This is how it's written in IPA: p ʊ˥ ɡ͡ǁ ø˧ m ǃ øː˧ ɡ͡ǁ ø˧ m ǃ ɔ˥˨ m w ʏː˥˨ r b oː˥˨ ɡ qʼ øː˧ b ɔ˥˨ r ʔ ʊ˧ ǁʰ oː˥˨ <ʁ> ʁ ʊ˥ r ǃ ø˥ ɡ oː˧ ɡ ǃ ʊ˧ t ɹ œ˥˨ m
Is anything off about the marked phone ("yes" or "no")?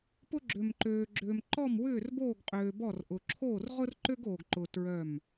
yes